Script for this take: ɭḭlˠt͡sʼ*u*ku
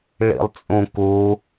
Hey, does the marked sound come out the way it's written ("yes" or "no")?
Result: no